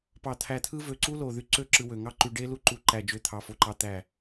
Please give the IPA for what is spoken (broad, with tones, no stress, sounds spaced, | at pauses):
p ɑ˧˩ t̪ʰ æ˧˩ t̪ʰ ɯ˦˥ v ø˧˩ ǀ u˦˥ l o˧˩ ð y˧ ǀ ø˦˥ ǁ ɯ˧ w ø˧˩ ŋ ɑ˦˥ ǃ y˧ ɖ e˦˥ l u˦˥ ǃ u˧ ǃ æ˧˩ d͡ʒ ø˧ t̪ʰ ɑ˧ f o˧ ǃ ɑ˦˥ t̪ æ˧˩